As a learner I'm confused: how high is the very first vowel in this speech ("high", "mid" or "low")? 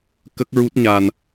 mid